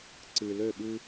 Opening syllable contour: low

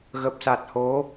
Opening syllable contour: low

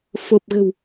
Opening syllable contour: low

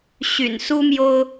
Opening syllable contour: low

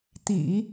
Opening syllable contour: low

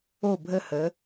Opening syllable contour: falling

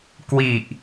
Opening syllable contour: low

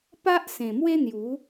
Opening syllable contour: high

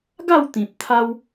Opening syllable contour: falling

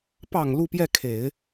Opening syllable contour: low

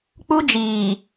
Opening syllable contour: high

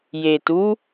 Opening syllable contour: low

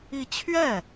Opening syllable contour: falling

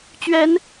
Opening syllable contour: rising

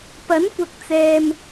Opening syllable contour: rising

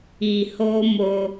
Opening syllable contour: low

